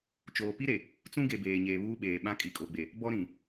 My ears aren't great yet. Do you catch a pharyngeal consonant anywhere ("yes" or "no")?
no